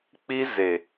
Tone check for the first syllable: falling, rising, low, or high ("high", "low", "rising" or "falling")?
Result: high